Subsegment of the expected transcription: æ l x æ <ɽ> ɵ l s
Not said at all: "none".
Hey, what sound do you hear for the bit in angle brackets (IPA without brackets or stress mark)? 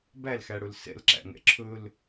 ɽ